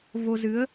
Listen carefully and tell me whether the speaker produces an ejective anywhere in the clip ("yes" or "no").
no